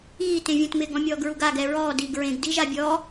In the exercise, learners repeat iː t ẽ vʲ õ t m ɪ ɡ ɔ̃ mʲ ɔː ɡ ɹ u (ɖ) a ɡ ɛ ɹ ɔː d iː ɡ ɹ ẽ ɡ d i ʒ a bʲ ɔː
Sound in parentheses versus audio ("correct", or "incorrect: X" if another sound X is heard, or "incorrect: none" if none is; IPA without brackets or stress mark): incorrect: ɡ